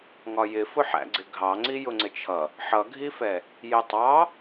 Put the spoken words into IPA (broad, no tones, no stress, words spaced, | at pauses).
ŋɒjɪfʊ ħæ̰ɡ͡ǀɪɡʱɑŋ͡ǀi jʊŋ͡ǀɪt͡ʃʰʌ | ħʌɡʱifɛ | jɪtˤɑ